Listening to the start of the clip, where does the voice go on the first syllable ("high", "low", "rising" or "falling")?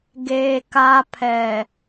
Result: low